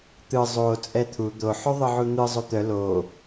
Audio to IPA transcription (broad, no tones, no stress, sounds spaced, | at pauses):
t̪ ɯ zˤ o t͡sʼ ɛ t̪ʰ u d̪ o ħ o ðˤ ɯ ʕ u n̪ ɯ zˤ o t̪ œ l o